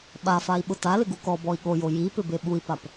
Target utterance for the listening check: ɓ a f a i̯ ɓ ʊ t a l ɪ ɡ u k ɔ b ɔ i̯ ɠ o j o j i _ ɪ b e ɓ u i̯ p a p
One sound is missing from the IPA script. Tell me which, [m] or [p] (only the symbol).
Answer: p